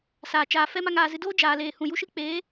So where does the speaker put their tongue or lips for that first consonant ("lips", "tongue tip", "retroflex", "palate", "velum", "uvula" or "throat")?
tongue tip